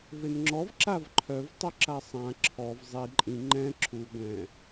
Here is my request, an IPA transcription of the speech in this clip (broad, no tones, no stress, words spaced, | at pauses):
venŋ͡ǁɔv ǁavǃʰœv tˤoǁasˤã ǁʰɔv zˤi ǃʼĩ ŋ͡ǃɛ̃ ǁʰu ɡʷɛ̃